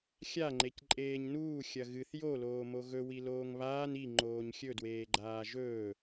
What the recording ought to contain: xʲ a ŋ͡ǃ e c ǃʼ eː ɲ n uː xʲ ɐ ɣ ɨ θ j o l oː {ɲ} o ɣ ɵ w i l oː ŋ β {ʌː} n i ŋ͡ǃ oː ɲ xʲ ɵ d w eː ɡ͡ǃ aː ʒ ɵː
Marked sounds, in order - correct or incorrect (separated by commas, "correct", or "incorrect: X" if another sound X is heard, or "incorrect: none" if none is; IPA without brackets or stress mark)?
incorrect: m, incorrect: aː